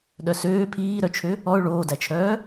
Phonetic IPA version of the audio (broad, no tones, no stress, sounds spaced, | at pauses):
ɗ œ s øː pʰ iː ɾ œ t͡ʃʰ ø | ɔ ʊ̯ ɭ oː d æ t͡ʃʰ œː